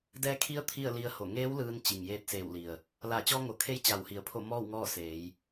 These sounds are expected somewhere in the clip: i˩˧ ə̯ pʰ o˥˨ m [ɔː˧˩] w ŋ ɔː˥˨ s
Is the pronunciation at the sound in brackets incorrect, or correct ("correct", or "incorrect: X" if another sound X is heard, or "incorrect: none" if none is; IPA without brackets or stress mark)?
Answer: incorrect: ɔː˥˨